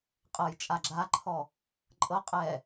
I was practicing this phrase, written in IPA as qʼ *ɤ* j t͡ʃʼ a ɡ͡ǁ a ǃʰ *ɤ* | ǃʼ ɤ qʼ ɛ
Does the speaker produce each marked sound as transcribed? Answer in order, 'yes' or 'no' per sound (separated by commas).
yes, no